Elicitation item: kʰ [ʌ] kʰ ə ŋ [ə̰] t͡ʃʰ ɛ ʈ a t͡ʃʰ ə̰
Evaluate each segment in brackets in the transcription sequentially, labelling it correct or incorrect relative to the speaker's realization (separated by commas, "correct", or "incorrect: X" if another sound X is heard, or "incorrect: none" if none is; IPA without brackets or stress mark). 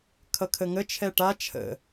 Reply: correct, incorrect: ə